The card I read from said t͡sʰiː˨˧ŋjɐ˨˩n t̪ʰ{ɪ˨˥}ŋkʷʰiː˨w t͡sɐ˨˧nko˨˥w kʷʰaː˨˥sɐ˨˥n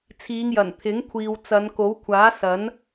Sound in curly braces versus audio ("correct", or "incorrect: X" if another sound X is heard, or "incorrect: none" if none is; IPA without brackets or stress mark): correct